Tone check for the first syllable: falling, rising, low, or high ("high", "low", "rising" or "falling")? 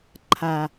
low